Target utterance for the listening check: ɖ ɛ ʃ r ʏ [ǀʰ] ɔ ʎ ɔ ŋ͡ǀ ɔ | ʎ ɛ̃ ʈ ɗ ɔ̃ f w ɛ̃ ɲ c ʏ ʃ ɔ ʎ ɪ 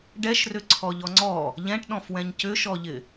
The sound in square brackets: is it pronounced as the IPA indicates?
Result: yes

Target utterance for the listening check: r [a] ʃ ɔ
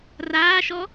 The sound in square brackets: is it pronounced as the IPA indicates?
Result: no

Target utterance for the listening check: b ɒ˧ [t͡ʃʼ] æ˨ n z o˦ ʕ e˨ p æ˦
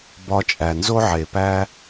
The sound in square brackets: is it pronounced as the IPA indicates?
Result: yes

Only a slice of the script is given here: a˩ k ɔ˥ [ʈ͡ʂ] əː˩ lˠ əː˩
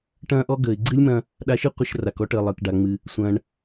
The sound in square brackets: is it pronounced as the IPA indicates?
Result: no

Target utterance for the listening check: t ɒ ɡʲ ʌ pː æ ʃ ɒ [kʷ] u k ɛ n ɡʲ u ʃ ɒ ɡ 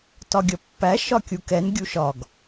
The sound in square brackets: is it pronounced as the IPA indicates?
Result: no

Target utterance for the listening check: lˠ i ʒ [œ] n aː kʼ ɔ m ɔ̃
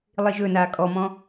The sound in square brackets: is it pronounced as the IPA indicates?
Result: no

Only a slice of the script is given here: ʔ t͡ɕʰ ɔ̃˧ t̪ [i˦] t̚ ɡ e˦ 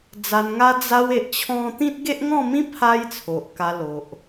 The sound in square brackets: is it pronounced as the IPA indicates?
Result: no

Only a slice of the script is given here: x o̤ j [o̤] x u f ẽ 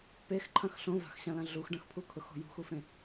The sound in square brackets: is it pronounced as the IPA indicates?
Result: no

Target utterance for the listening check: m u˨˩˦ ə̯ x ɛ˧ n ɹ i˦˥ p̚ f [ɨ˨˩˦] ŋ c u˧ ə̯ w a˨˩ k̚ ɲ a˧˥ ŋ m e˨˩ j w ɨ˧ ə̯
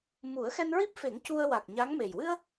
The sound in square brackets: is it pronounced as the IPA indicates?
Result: no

